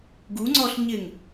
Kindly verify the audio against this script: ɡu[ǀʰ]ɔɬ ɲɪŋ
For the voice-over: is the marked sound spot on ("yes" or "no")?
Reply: no